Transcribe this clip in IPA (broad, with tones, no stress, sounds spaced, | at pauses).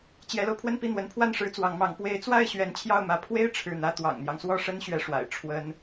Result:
t͡ɕ j ɛ˧˥ l o˧ ʊ̯ pʰ w ə˥˧ n p i˥˩ n̪ w ə˧˥ n pʰ w a˥˩ n ʂ ɻ̩˧˥ t͡s w ɑ˧˥ ŋ m ɑ˧˥ ŋ p w e˧˥ ɪ̯ t͡s w a˥˩ ɪ̯ ɕ ɥ ɛ˧˥ n t͡ɕʰ j ɑ˥˩ ʊ̯ m ä˧˥ pʰ w e˥ ɪ̯ ʈ͡ʂʰ ɻ̩˥˩ n̪ ä˥ t̪ w ɑ̰˨˩ ŋ n̪ j ɑ˦ ŋ s w ɔ˥˩ ʂ ə˥ n ɕ ɥ ɛ˧˥ ʂ w a̰˨˩ ɪ̯ ʈ͡ʂʰ w ə˥ n